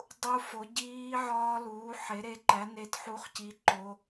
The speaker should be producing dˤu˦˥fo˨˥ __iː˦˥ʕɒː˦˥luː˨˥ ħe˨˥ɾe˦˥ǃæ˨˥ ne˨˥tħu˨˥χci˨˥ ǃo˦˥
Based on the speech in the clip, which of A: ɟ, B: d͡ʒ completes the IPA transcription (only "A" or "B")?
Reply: A